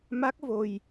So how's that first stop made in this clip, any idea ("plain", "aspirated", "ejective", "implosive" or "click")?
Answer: plain